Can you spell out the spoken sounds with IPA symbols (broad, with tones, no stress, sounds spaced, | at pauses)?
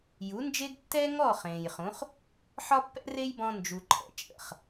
j u˩˥ n d͡ʒ e˥ ɡ tː ɛ˥ ŋ ɔ˥˩ χ ẽː˩ j χ ũ˩˥ χ | ħ ɒ˥ pː ɛ̰˥ r e˥ j b ɔ̃˧ n d͡ʒ u˩ ǃʰ ɛ̰˩ t͡ʃʼ ə̰˩ χ